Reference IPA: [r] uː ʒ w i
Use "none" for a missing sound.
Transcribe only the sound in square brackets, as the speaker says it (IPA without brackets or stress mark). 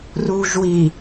r